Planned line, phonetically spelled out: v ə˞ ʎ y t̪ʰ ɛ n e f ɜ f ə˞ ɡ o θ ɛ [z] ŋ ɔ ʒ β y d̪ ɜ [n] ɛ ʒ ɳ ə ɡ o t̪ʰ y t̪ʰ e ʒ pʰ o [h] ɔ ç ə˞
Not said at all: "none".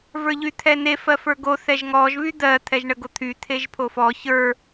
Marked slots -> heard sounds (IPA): ʒ, t̪ʰ, f

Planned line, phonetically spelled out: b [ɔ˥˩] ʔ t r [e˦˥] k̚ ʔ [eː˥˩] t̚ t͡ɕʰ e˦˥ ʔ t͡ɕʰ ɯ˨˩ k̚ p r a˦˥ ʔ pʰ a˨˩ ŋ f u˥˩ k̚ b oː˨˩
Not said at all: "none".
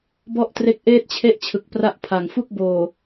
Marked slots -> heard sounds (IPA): ɔ˥˩, e˦˥, eː˥˩

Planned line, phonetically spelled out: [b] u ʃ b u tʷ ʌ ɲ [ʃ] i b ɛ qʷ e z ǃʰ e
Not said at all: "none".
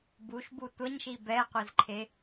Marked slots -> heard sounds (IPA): b, ʃ

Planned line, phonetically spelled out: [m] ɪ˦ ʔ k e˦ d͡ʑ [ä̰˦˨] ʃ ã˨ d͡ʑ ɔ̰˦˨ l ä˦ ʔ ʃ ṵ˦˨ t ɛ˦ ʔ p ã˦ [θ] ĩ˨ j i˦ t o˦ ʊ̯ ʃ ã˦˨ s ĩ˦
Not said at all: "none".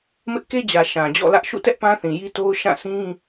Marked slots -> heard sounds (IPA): m, ä˨, θ

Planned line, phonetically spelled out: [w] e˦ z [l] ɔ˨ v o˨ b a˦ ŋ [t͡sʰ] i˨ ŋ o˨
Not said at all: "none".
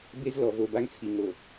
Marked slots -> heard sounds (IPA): b, l, t͡sʰ

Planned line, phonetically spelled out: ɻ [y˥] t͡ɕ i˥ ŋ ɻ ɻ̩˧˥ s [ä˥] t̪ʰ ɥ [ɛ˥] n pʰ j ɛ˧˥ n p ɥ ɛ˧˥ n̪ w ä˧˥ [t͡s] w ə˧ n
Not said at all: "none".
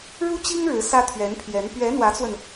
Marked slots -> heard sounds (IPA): u˥, ä˥, ɛ˧˥, t͡s

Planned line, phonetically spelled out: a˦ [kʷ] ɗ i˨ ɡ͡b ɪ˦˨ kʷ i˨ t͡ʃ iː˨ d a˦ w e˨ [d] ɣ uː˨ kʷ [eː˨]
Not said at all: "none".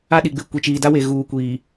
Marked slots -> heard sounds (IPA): none, none, iː˨

